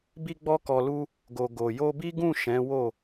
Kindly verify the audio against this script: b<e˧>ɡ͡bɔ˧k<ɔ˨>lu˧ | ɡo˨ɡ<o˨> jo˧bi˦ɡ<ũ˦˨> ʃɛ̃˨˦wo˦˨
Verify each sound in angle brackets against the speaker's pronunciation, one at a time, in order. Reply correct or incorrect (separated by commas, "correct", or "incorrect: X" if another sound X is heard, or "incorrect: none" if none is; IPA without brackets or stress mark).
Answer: incorrect: i˧, correct, correct, correct